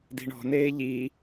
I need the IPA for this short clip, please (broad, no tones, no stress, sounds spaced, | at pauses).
d i̤ ɳ ɔ̤ n eː ʎ i